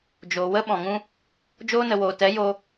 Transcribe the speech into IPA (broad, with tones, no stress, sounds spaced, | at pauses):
d͡ʒ oː˨ w ə˦ ɓ ɔ̃˨ ŋ ũ˦ | d͡ʒ oː˧ n ə˨ w oː˨ t ɛ˨˦ j o˧